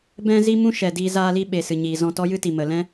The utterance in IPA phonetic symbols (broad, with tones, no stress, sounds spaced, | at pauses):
b ɛ̃˦ z i˦ m ũ˦ ʃ ɛ˨ d iː˧ z aː˧ l i˦ ɓ e˨ s ɨ˨ ɲ iː˨ z ɔ̃˧ t ɔ˦ j ɨ˦ t i˨ m ə˨ l ɛ̃˦